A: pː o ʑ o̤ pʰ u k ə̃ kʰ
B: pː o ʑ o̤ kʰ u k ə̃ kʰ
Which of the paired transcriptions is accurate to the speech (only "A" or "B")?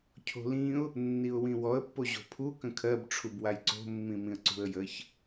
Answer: A